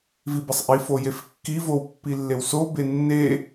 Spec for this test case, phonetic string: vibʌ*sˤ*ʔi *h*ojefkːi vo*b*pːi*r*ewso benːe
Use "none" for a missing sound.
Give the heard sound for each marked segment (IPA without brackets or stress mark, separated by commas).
sˤ, f, w, lː